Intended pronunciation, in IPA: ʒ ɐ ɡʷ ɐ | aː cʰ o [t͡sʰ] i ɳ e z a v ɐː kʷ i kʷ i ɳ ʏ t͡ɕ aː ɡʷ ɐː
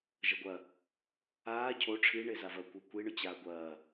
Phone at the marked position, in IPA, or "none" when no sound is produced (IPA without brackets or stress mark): ʈ͡ʂʰ